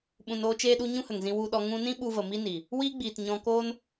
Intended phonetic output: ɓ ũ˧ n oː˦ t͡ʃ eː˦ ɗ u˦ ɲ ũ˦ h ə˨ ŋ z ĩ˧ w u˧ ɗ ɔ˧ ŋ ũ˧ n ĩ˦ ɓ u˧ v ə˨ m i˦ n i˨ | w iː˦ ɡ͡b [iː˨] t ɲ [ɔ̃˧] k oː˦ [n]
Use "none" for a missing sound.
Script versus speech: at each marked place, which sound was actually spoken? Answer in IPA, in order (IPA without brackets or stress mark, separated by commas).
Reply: iː˨, ɔ̃˧, n